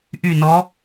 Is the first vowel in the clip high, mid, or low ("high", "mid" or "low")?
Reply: high